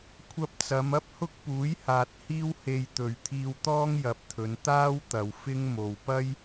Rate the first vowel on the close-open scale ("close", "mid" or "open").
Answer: open